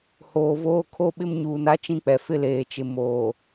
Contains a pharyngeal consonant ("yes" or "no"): no